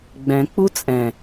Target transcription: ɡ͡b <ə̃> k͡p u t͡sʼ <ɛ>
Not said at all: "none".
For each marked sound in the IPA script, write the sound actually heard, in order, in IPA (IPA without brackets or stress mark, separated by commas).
ɛ̃, ɛ̃